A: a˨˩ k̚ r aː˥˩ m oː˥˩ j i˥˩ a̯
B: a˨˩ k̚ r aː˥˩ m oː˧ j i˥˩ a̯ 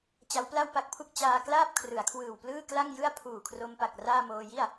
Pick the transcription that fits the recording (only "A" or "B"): B